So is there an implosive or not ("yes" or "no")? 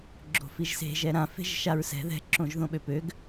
yes